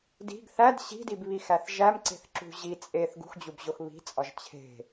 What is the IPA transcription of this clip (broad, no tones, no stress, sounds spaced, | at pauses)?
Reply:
d i̤ ɡ θ æ d ɕ i̤ d i b β i x æ θ ʒ æ m ǀ e̤ θ ǁ ṳ ʑ i t͡sʼ e θ ɡ ṳ x d͡ʑ u b ʑ o x β i̤ t͡sʼ ɒ ʒ t͡ɕʰ e̤